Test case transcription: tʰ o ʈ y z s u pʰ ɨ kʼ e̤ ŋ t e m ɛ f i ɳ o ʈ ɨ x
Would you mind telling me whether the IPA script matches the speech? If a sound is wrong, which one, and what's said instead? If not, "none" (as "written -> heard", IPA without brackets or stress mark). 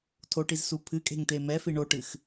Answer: y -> i